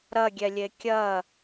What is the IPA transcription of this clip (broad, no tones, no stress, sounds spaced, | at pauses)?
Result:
ɾ ɐ ɡʲ ɛ lʲ e kʲ ɐ